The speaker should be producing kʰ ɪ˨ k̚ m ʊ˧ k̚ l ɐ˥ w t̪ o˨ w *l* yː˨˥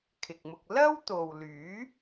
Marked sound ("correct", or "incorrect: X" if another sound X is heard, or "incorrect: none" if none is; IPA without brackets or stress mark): correct